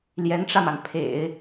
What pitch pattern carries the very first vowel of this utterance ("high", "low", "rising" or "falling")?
rising